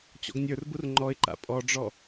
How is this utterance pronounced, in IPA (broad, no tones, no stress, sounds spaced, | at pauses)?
t͡ɕ ɔ̰ ɡ nʲ ə˞ r b u r ŋ͡ǃ ɔ ɪ̯ ǃ a̰ pʼ ɔ ɖ͡ʐ ɔ